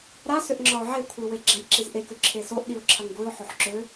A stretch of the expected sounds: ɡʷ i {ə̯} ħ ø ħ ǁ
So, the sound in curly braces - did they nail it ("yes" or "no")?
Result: no